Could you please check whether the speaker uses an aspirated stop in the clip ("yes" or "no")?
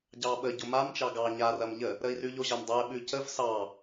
no